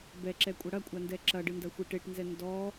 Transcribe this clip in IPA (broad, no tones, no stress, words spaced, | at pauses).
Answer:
bɛǁɛkʷʼɐ ɽɐkʷʼandɛ ǁɐɖɨndɐxʷe ʈeʈnzɛ ndɔ